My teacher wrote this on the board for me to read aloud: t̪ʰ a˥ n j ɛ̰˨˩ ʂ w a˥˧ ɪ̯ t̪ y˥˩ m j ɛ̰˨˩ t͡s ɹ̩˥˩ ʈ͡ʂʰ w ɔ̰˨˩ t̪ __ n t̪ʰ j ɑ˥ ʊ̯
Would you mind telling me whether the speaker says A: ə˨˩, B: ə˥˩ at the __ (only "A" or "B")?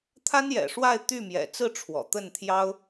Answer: B